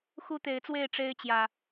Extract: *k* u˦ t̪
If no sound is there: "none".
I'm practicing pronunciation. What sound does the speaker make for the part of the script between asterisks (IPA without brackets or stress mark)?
x